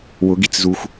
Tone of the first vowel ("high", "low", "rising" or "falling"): rising